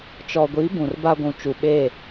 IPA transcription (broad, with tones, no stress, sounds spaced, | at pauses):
t͡ʃ ɔ˨ ɡʷ i˨˦ b ũ˨ r b a˦ ɡʷ ũ˨ t͡ʃ u˨ ɓ e˦˨